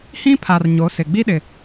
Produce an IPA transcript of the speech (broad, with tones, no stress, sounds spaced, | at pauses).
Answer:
h ĩ˦ pʰ a˨ r ɲ o˨˦ s ɪ˨ ɡ͡b i˦ ɗ ɪ˨